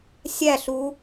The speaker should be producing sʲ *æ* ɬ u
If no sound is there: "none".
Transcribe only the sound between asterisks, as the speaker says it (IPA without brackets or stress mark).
æ